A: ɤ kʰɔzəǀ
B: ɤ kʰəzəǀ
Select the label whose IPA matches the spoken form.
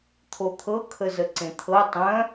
B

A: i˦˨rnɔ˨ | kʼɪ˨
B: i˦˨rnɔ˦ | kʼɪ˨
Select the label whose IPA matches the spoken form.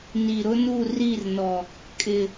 A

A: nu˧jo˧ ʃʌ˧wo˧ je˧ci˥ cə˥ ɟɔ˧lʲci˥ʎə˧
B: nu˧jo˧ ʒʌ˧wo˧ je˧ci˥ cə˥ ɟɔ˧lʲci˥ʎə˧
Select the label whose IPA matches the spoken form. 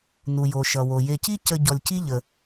A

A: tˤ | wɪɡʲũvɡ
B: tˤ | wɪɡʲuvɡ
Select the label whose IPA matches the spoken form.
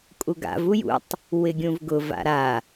A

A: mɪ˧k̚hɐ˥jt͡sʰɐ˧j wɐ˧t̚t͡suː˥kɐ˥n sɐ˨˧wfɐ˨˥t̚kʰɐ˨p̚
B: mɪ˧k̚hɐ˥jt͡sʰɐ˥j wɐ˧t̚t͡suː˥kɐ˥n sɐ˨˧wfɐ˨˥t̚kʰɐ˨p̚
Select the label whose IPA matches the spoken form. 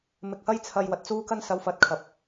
A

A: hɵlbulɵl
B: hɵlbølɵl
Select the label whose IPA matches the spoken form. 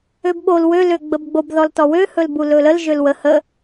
A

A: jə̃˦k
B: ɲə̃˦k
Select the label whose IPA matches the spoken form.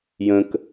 A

